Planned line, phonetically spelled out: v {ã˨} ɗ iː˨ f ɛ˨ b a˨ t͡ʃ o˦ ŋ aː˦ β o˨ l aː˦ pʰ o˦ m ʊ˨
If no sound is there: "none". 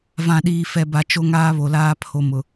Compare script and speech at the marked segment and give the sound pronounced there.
ã˨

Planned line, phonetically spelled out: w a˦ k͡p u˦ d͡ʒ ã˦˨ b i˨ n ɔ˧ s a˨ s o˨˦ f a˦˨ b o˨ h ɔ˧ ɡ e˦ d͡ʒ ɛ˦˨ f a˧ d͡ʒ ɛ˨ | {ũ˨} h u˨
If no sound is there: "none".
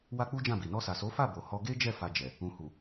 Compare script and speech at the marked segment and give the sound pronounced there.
ũ˨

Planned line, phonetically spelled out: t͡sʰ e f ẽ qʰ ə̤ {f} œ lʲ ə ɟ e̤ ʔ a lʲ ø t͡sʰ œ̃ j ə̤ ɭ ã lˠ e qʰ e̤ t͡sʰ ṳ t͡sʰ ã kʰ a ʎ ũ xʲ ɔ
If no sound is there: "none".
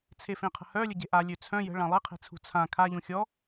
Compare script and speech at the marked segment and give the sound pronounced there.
h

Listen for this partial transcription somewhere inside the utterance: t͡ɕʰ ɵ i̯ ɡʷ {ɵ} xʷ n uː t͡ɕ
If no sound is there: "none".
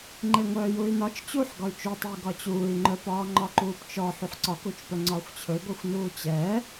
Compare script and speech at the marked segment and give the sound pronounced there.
œ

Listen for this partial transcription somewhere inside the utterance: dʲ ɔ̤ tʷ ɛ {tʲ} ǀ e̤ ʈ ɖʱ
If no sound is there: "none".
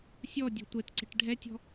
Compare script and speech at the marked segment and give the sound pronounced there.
t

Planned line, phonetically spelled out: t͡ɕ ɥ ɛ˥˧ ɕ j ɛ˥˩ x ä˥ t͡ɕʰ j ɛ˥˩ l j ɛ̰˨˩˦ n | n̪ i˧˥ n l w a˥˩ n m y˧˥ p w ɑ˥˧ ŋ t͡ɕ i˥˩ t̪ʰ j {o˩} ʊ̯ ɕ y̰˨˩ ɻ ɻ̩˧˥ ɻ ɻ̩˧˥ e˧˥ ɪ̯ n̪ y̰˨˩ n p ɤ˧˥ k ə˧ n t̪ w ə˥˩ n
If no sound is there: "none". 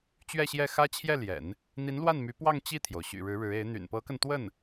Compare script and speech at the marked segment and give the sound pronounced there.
o˩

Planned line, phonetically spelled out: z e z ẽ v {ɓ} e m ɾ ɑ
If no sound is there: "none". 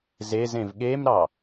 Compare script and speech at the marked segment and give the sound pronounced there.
ɠ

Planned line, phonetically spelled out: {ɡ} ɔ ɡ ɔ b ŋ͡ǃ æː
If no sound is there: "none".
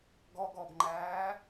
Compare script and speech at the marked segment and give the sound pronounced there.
ɡ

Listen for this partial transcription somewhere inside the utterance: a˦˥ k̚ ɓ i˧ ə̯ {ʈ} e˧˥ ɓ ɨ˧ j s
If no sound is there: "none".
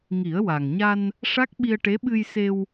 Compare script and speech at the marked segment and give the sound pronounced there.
ʈ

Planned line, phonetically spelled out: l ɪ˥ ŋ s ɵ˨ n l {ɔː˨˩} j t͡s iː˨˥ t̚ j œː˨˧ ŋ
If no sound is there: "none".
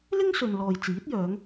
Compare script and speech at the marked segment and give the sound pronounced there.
ɔː˨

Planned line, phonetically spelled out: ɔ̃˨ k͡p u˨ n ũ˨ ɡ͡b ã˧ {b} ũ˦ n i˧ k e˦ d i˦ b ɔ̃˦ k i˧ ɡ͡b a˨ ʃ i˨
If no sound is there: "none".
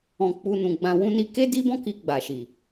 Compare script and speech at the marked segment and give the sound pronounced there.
w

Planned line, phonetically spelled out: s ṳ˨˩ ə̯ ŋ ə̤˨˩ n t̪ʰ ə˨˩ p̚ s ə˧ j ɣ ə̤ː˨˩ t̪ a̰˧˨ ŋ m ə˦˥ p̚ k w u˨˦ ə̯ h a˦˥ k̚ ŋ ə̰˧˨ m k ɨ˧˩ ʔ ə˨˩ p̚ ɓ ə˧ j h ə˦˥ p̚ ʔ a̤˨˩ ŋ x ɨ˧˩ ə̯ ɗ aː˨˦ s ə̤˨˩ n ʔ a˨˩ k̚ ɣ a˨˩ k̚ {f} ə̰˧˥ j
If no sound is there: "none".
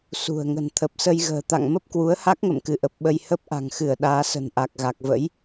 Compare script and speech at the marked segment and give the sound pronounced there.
v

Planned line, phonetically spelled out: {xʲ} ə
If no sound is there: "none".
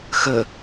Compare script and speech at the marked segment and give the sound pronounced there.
x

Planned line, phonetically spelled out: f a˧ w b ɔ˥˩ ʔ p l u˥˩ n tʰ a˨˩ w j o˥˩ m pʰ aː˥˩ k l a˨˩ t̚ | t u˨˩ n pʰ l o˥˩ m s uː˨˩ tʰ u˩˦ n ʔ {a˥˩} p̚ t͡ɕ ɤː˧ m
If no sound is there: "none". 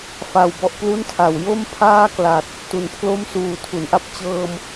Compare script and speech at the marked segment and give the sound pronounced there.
a˥˩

